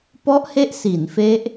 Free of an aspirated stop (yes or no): yes